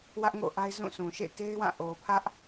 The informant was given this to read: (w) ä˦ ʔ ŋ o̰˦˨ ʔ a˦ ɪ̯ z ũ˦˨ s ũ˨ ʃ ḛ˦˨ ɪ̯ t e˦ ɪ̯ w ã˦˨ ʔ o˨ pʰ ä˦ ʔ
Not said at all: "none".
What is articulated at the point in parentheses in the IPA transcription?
w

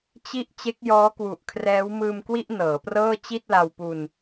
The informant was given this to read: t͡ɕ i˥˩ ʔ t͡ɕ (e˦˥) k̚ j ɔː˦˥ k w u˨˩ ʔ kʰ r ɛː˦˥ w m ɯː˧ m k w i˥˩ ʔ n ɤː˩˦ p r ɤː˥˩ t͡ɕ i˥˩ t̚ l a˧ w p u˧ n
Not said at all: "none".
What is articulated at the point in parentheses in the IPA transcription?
e˦˥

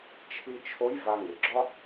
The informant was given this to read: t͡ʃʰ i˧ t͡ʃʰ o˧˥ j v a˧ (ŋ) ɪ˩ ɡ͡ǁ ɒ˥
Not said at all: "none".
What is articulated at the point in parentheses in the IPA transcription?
ŋ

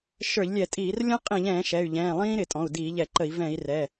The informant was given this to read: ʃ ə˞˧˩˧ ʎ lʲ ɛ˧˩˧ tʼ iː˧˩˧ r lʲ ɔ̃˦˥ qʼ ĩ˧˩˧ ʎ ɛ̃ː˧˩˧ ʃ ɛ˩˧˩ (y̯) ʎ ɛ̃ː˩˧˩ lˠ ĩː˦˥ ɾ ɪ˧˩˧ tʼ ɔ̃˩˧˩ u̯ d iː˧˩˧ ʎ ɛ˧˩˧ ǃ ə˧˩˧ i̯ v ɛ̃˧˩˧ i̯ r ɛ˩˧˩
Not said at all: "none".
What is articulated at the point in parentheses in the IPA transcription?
y̯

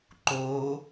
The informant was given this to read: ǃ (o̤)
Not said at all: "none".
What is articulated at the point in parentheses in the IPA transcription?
o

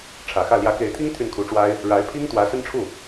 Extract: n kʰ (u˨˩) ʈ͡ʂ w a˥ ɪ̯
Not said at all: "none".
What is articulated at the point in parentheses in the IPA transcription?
u˧˥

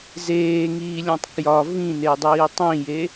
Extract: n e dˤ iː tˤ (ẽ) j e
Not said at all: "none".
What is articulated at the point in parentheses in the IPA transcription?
ĩ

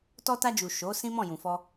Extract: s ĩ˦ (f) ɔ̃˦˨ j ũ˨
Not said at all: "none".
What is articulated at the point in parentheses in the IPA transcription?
m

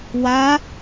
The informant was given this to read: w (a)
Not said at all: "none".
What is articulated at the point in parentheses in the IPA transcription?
a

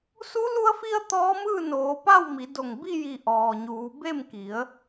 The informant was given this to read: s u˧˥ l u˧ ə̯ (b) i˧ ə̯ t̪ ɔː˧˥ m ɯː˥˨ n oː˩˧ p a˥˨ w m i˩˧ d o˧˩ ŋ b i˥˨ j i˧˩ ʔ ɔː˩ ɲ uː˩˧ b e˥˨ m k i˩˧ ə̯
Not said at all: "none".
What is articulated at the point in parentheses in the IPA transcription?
f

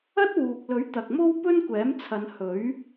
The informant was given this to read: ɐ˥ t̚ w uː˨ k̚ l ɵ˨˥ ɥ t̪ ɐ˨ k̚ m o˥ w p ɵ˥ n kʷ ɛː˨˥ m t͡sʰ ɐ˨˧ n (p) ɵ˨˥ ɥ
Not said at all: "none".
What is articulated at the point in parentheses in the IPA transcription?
h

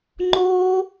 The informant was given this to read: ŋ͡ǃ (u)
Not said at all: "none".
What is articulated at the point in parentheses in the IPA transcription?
o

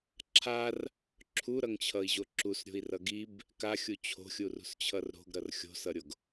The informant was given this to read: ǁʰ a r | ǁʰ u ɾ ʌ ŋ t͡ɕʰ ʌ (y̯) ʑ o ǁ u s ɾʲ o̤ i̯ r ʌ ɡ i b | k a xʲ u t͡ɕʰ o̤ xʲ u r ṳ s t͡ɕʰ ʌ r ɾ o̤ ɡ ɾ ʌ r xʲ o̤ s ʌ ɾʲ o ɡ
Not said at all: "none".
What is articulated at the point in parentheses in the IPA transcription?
i̯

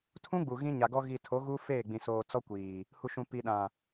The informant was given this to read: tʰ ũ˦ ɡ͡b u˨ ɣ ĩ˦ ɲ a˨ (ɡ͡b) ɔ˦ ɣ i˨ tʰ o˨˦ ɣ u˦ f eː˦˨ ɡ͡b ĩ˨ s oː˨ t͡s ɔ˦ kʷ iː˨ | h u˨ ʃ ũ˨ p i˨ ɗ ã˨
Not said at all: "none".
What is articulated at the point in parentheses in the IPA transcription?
ɡ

